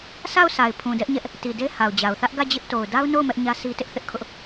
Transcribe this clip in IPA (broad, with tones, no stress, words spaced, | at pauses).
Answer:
sʰa˦˨ʊ̯ sʰa˨ɪ̯pʰũ˨dɛ˦ʔɲɛ˦ʔ | ti˨de˦ ha˨ʊ̯d͡ʑa˨ʊ̯ θä˦ʔɡä˦˨d͡ʑɪ˦ʔ to˨ʊ̯da˦ʊ̯no˦˨ʊ̯ mɛ˦ʔɲä˦sʰi˦tɪ˦ʔ θɪ˦ʔkʰʊ˦ʔ